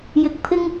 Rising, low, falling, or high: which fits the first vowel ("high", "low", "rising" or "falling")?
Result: low